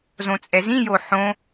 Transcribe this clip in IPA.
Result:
z õ t͡sʼ ɛ z ĩ j o ħ õ

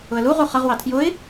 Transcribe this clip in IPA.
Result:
ʊ ə̯ l u ʁ u χ ʌ ʁ w ɑ tʰ j ʊ ɪ̯

